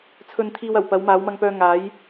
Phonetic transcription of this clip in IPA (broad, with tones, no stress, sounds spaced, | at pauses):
t͡sʰ ɵ˧ n t̪ʰ iː˧ w ɐ˨˩ w p ɐ˨˧ w m aː˨˧ w m ɐ˧ ŋ p œː˧ ŋ aː˨˥ j